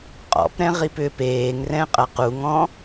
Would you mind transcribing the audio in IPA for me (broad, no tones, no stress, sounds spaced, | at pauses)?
qʼ ɔ̰ p ɾ ɛ̃ ʁ i p ʏ p eː ŋ r ɛ̃ qʼ ɐ q u ŋ ɔ̃